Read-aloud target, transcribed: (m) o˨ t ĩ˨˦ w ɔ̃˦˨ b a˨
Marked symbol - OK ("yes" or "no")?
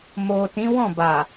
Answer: yes